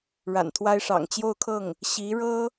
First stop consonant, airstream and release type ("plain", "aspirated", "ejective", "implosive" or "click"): aspirated